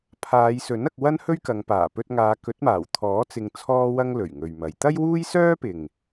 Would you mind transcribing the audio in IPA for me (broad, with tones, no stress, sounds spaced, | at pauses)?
pʰ aː˨˧ j s ɵ˨˥ n ɐ˧ k̚ w ɐ˥ n h ɵ˥ ɥ k ɐ˨˧ ŋ p aː˨˩ p ɵ˧ t̚ ŋ aː˨˧ k ɵ˨˥ t̚ m aː˨˩ w t̪ʰ ɔː˨˥ t͡s ɪ˧ ŋ t͡sʰ ɔː˥ w ɐ˥ ŋ l ɵ˨˩ ɥ ŋ ɵ˨ ɥ m ɐ˨˧ j t̪ ɐ˥ j w uː˥ j s œː˥ p ɪ˨ ŋ